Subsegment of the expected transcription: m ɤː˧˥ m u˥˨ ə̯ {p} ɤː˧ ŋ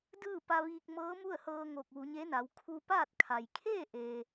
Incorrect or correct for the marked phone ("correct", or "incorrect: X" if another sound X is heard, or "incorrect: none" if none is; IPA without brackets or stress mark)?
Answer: incorrect: h